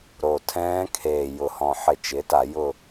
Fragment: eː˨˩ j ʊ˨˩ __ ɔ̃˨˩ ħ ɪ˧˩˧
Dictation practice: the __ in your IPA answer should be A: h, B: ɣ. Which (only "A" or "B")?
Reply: A